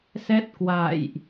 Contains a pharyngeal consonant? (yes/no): no